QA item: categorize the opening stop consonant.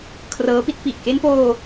aspirated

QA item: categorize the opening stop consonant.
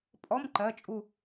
ejective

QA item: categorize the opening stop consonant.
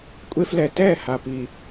ejective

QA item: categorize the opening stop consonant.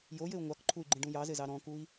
plain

